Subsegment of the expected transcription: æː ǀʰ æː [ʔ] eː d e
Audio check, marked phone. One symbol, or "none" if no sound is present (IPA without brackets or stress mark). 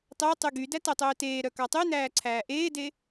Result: ʔ